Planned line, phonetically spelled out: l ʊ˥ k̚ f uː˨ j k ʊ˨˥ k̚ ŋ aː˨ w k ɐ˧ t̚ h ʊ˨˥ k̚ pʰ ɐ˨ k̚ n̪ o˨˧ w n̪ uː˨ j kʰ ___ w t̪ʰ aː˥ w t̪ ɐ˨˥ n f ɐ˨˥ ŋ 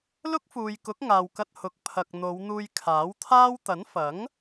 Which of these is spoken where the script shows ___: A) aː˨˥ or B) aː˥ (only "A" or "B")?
A